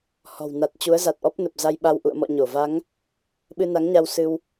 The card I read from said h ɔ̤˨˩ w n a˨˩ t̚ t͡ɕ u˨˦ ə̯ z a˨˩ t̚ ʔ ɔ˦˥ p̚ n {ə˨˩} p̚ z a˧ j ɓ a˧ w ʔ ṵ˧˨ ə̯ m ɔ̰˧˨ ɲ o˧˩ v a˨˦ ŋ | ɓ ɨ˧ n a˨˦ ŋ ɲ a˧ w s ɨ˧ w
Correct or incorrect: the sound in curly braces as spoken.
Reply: correct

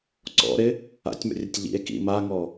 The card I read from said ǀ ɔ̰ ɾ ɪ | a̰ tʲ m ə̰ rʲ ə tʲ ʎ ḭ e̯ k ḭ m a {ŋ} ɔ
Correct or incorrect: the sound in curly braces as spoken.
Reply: correct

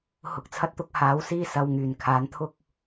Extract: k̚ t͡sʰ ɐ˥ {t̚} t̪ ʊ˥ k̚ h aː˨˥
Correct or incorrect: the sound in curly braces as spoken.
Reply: correct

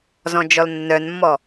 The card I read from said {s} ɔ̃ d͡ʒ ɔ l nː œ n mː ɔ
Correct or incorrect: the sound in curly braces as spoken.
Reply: incorrect: z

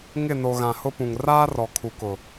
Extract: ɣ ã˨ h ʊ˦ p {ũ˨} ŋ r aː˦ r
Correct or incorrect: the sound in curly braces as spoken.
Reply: correct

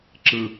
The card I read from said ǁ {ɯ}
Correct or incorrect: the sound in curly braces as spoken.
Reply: correct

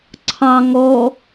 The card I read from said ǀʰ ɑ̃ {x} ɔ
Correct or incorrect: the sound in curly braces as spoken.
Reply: incorrect: ŋ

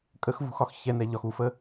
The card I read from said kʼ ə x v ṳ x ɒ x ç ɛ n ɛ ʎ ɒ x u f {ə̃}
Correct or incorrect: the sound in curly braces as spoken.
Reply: incorrect: ə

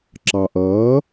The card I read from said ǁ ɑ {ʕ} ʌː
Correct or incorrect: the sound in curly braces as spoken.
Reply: incorrect: ʔ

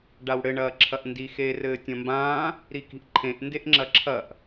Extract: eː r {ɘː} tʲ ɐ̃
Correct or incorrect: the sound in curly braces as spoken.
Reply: correct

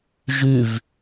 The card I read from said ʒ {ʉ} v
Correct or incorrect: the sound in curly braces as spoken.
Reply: correct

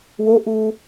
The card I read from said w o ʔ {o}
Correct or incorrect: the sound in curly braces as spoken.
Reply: incorrect: u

